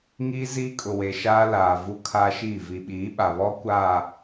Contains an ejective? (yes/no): yes